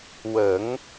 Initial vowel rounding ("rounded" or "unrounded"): unrounded